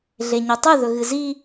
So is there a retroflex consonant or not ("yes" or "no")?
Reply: no